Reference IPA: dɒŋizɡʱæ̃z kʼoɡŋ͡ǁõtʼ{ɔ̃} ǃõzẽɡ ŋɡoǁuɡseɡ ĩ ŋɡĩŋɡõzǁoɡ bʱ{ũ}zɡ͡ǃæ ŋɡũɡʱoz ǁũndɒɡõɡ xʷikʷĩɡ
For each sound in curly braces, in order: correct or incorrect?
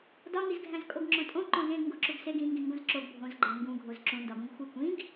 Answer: incorrect: õ, incorrect: õ

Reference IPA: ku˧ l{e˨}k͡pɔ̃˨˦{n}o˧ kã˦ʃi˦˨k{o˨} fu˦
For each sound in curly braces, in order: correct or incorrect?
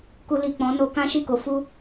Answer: incorrect: i˨, correct, incorrect: o˨˦

